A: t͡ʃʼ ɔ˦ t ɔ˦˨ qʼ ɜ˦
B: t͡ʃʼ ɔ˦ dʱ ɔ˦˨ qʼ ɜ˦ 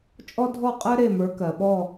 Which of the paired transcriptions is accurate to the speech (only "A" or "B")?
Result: B